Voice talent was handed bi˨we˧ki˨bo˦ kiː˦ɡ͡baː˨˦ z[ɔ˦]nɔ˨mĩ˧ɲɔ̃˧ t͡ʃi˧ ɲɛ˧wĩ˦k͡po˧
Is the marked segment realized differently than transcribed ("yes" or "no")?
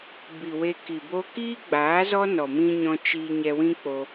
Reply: no